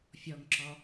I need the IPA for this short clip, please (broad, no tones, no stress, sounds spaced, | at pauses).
fʲ ɔ ŋ ǁ ɔ